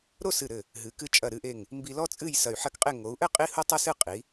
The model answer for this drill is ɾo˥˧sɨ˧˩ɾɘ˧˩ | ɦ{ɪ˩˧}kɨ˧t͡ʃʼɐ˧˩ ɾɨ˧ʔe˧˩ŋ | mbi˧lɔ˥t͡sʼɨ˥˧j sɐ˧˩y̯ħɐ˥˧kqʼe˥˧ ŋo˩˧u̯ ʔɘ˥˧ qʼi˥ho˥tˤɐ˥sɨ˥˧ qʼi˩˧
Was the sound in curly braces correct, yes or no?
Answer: no